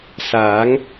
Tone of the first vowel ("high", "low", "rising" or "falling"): rising